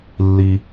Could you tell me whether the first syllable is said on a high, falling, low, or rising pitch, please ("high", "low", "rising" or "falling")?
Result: low